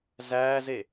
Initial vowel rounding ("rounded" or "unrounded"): unrounded